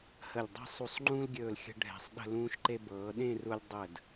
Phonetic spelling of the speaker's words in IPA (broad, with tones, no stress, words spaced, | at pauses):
hə˧˩lʲ dˤe̤˥˧ sˤu˧˩sˤŋ͡ǃũː˥lɡʲɵː˧˩l xʲə̤˥ɖʱɛ̤˧˩sˤ ɗə̤˥˧lũː˥ʃǃe˥ bɤː˩˧ɗẽ˥˧ru˧lʲ dˤə˧˩d